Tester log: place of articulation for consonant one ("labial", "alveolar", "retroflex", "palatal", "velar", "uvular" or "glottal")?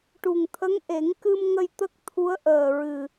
retroflex